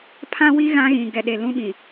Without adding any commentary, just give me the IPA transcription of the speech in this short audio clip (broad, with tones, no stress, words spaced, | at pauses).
pʰã˦wi˦ ɣã˦ɣĩ˨ ɡɛ˨ɗe˨ lũ˦ɓĩ˨